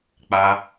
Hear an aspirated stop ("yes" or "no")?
no